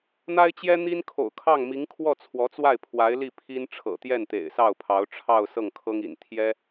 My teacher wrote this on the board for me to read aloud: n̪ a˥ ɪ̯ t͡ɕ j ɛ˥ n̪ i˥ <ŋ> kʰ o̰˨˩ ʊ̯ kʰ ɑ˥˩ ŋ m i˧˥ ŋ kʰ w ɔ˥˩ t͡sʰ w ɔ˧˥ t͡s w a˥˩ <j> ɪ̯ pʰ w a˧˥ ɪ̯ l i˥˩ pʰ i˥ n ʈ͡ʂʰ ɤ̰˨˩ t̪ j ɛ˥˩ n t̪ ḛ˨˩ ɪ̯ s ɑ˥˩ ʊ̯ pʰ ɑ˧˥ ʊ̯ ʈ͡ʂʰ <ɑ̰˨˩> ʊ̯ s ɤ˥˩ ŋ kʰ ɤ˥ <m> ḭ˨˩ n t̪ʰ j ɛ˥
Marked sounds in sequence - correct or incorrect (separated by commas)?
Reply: incorrect, incorrect, incorrect, incorrect